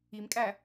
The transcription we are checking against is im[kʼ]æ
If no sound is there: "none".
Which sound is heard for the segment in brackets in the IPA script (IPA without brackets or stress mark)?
kʼ